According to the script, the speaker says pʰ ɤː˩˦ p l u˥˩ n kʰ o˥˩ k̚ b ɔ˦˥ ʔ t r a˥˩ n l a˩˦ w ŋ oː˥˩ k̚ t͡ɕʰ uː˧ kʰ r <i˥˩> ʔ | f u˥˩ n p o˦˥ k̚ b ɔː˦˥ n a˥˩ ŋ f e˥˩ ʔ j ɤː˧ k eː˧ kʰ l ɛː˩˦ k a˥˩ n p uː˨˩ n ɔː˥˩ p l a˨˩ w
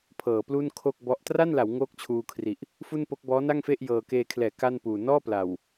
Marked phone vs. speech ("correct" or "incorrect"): incorrect